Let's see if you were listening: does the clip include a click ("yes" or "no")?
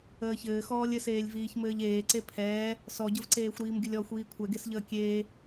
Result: yes